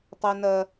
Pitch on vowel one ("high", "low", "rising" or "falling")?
high